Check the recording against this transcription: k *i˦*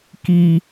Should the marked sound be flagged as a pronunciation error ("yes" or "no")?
no